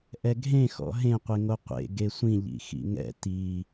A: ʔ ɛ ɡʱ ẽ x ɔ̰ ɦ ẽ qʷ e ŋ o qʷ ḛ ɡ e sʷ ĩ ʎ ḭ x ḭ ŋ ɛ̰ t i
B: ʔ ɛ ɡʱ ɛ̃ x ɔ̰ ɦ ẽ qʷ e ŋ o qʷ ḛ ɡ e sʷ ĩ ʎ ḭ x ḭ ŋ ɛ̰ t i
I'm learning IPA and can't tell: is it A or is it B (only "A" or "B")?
A